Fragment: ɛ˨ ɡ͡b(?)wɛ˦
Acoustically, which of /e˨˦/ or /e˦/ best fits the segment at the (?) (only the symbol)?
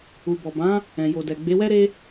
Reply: e˨˦